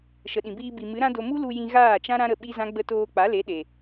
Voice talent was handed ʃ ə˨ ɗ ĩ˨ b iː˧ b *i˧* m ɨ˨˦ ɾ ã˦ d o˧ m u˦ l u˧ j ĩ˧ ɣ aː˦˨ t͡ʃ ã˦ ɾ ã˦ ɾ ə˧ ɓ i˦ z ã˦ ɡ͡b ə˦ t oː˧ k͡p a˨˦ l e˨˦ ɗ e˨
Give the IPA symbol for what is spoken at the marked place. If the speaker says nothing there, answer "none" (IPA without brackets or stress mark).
i˨